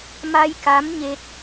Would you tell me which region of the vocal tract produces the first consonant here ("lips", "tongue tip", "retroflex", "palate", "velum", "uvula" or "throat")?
lips